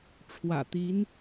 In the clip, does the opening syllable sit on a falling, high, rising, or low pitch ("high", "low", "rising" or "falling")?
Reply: low